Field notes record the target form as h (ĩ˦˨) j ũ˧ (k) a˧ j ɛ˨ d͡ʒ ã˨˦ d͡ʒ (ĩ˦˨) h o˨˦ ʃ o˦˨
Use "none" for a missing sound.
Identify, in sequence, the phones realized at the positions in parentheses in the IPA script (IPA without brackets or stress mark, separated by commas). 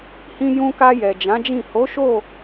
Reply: ĩ˧, k, ĩ˦˨